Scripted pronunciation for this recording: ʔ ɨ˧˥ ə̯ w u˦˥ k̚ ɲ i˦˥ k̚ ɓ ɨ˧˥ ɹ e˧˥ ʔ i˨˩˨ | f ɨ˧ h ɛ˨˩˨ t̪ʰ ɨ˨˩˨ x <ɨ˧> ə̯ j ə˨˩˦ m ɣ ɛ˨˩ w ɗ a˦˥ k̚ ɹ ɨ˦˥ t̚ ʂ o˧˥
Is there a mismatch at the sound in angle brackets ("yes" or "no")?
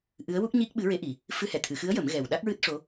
yes